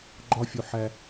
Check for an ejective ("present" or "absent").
absent